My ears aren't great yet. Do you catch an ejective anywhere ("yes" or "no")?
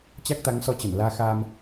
no